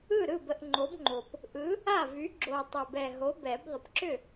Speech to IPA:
ɯ˥˩ ɾ ɯ˥˩ b ə˥˩ ʔ ŋ͡ǃ o˨˥ b ŋ͡ǃ o˨˩ p | ʔ ɯ˨˥ | a˥˩ v y˨˥ ɡ͡ǁ o˨˩ tˤ ʏ˨˩ b ɛ˨˩ ɦ o˨˥ b ɛ˨˩˦ b ðˤ ə˨˩ p ǁ ʏ˥˩

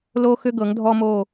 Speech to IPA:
l o˧ x ʏ˧ ɡ ɤ˨˦ ŋ dʱ ɔ˦ m o˦˨

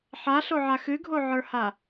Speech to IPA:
ħ a ɬ o ʕ a x ɨ ɡʱ o ʕ ə˞ h a

